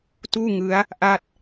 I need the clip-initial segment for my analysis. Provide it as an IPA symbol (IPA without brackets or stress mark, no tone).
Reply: t